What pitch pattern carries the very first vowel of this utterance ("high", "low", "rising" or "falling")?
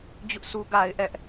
high